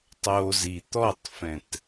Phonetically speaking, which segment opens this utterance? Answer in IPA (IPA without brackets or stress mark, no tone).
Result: tˤ